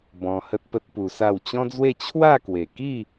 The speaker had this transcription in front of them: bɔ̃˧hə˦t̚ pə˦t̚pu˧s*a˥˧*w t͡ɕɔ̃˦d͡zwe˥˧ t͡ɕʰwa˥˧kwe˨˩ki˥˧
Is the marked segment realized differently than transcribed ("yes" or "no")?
no